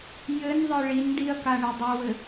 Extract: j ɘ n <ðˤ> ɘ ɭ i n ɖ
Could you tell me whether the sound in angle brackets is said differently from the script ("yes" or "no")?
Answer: no